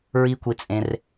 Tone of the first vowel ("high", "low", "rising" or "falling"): high